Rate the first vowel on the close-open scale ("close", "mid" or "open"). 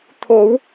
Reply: mid